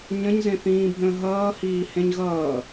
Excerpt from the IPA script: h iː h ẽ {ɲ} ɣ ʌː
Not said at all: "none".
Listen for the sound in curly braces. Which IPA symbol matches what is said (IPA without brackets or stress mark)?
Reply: ɲ